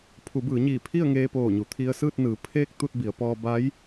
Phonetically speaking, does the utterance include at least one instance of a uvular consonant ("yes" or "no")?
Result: no